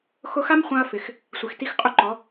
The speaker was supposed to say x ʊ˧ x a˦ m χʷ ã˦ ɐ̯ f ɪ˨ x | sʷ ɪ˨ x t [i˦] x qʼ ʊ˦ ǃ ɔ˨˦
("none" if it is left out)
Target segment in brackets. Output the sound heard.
i˦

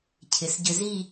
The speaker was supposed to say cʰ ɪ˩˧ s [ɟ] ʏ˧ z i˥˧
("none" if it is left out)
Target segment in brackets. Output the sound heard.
ɟ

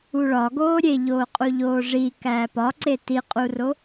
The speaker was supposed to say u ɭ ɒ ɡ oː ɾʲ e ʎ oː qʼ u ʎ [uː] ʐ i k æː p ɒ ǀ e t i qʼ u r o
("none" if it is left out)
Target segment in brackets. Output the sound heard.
oː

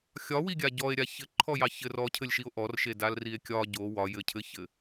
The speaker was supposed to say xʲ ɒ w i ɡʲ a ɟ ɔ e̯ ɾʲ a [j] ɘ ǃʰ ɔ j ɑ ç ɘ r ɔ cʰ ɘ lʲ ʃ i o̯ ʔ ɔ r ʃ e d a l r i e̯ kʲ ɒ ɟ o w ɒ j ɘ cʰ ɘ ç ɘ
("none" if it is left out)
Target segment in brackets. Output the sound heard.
ç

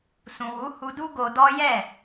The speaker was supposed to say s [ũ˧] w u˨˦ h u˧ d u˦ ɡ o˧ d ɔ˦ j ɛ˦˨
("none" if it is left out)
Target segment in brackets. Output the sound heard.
ũ˨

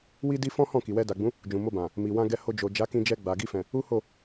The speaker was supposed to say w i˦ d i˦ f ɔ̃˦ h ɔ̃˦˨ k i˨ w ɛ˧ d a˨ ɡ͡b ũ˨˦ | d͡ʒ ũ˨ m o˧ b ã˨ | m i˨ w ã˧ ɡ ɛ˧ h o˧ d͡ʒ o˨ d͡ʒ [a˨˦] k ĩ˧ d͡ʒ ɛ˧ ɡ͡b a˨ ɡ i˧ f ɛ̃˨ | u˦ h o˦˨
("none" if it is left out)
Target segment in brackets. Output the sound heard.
a˨˦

